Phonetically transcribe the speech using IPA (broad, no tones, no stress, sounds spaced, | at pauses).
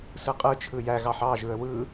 s ɯ qʼ ɯ t͡ʃʰ ɯ j æ ɣ ɑ ħ ɑ ʒ ɯ ə̯ w ɯ